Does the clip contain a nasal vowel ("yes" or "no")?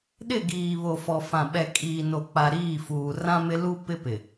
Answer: yes